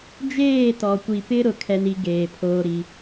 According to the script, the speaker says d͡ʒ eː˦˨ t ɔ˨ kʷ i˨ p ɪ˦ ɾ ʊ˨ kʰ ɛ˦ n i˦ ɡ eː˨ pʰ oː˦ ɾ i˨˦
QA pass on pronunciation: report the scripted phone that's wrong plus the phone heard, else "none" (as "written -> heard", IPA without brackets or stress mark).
none